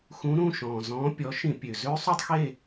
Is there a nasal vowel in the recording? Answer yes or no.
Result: yes